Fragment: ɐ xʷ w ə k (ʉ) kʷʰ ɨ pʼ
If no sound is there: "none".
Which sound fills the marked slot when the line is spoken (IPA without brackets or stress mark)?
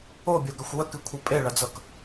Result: ɨ